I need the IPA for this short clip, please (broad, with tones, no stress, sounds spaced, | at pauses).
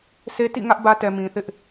sʰ e˦ t ḭ˦˨ ŋ ä˦ ʔ b ä˦ t ɛ˨ m ĩ˨ θ ɪ˦ ʔ